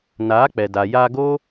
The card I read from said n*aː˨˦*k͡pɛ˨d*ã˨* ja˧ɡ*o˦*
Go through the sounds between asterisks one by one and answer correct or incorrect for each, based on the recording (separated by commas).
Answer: correct, incorrect, correct